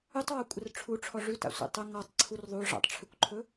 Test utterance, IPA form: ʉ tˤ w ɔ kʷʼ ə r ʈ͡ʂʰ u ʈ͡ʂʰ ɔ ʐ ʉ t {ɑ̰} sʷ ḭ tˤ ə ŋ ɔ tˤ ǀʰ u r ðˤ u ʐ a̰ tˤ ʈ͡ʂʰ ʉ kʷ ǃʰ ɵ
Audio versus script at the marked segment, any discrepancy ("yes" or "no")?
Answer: yes